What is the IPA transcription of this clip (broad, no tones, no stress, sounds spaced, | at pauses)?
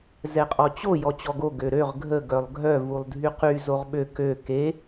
z ɛ qʼ ɔ t͡ɕ o j ɔ t͡ɕ ɔ ɡ o ɡ ø ɾ ø ʁ ɡʱ ə ɡ œ lˠ ɡʱ œ v u lˠ dʱ y q y z o ʁ ɓ ø k ø k e